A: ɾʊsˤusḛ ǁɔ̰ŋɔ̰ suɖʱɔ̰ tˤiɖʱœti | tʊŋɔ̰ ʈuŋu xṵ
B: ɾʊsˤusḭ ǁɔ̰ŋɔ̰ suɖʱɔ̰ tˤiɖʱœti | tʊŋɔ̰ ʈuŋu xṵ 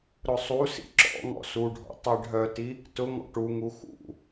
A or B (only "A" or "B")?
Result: B